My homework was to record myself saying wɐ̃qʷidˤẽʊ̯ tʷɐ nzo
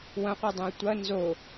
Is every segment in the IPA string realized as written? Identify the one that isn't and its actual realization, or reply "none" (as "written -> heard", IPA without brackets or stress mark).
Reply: none